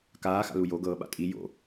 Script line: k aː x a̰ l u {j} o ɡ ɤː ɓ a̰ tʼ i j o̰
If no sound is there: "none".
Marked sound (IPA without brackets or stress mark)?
j